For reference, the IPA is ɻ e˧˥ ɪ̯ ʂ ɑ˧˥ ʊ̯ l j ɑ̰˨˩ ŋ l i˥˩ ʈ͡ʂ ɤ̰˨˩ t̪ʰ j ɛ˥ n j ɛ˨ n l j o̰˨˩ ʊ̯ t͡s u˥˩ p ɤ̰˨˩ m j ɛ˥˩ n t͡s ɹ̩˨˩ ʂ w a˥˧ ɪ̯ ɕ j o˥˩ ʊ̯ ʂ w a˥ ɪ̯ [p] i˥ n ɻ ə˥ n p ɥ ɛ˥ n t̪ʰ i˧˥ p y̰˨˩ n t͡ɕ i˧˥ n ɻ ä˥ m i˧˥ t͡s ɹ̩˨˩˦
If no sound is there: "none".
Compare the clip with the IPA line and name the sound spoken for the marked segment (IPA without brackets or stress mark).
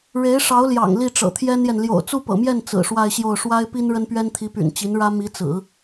p